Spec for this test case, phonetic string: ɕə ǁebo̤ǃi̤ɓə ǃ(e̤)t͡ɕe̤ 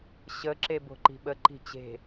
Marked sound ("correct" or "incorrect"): incorrect